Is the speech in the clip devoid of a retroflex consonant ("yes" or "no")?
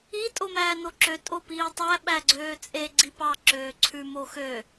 yes